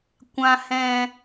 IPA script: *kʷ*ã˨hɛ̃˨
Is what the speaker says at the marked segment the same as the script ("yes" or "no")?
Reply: yes